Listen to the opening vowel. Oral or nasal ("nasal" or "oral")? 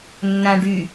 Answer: nasal